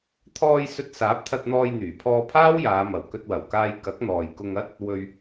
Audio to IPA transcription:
t̪ʰɔː˧j sɵ˧t̚saː˨˥p̚t̪ʰɐ˧t̚n̪ɔː˧j n̪yː˨˩pʰɔː˧pʰaː˥wjaː˨˧ mɐ˨˩wkɵ˧t̚wɐ˨˩wkaː˧j kɐ˨˥k̚n̪ɔː˨jkʊ˧ŋ ɐ˥t̚ | wɵ˧ɥ

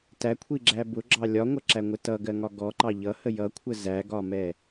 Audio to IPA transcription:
tækʷʰiɡ͡ǁæ bʊɡ͡ǁɑ lʲɒŋʷʌǁæŋʷɪ tʌɡɜŋɒ ɡɔǃɑ ʎʌhə jʌkʷʰə zæɡɒmɛ

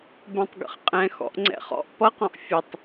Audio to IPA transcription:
bɛ̃tˤɡə̰χqʼɛ̃ xɔ̰ʔŋ͡ǀɛ̰χɔ̰ʔ pʌqɔ̃ʔ fʲətˤ

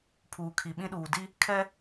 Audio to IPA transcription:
pʰuː˨kʰi˨ ɓĩ˦ɗuː˨di˦ | kʰɛ˦

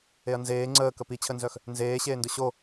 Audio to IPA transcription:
eɐ̯nzeː ŋ͡ǀəːkə pit͡ɕʰənzœx | nzeːɕeːndʊ ɕo

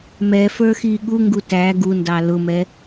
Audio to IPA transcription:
mɛfə˞xi ɠuŋɡu tæ ɡundɑ lʊmɛ

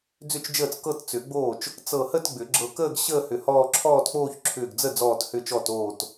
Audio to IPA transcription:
d͡zʏ˥˩t͡ʃd͡ʒəː˥˩t͡s kɤ˥˧tt͡sʏ˨˩˦ɡ͡boː˥˩t͡ʃ | t͡sɤ˧˩hə˥˧t ɡ͡bʏ˨˩˦ɡ͡ǁɤ˧˩kəː˥˧ɡ ɕəː˥˧hʏ˧˩ hɔː˥˧ ǁʰɔː˥˧tk͡poː˥˧ç ǁʰʏː˧˩ɡd͡zə˥˩ d͡zɔː˧˩thʏː˧˩t͡ʃ ɔ˧˩t oː˧˩t

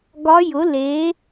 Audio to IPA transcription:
ɡɒ˧˥jʊ˩˥le˩˥

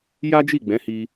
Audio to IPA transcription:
ja˦d͡ʒi˦˨ɡ͡bɛ̃˨˦hi˧

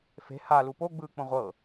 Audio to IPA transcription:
fe̤ halu poɡ͡bɯːk͡põ ʁʷɤ

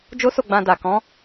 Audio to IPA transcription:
d͡ʒo˦so˦˨ɡ͡bã˧ da˨kɔ̃˨˦

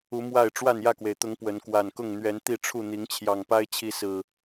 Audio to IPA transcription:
u˨˦ mwa˥˨ɪ̯ ʈ͡ʂwa˥˨njä˥˨kwe˩ɪ̯t̪ʊ˨˦ŋ pwə˨˦n kwa˨˩nkʊ˥˨ŋn̪ɥɛ˨˦n t̪i˥˨ʈ͡ʂʰu˥˨n̪i˨˦ŋ t͡ɕʰjɑ˨˩ŋpa˦ɪ̯t͡ɕʰi˨˦ sɹ̩˨˩

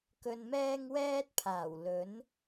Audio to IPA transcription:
kɵ˧nmɛː˥ŋ wɛː˥t̚pʰaː˨˩w lɵ˨˥n

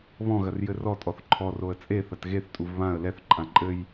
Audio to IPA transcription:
βɔ̃ ɣɐrjɘrɔ tʼɔθǃʰɔ roə̯t͡sʼe θɐtɣeθ tʼuvβãə̯ lɛθ ǃʼãǃʼɘj

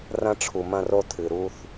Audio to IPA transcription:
rɐ̃˦ʈ͡ʂʰu˨mɐ̃˦ro˦ tʰɨ˨ɾu˦θ

